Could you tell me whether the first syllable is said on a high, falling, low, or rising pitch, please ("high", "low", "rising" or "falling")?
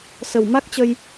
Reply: low